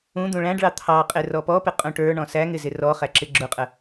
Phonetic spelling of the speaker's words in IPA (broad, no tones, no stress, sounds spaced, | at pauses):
ũ d̪ ũ ɭ æ̃ ɖ ɭ ɑ t̪ʰ ɑ qʼ ɪ r ɔ p ɔ p ɪ qʼ ũ ʈ ə˞ ɳ ɔ̃ s æ ŋ ɪ z ɪ r ɔ χ æ ǁ ɪ ɡ͡ǁ ʊ qʼ ə